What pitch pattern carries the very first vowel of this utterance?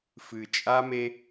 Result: low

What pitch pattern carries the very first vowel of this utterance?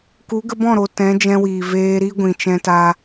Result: rising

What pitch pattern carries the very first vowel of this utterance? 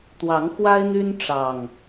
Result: rising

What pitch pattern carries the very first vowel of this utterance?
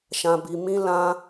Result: low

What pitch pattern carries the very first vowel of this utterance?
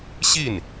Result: falling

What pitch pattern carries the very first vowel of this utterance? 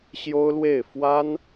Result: high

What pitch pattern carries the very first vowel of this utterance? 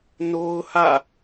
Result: high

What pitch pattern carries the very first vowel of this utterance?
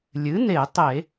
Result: rising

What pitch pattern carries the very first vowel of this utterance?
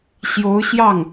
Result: rising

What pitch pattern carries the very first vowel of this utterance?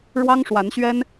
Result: high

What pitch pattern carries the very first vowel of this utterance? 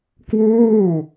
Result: falling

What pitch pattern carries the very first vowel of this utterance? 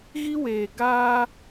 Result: high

